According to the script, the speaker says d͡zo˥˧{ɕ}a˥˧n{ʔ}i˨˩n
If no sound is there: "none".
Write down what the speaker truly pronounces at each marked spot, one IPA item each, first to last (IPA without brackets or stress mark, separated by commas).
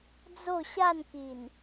ɕ, k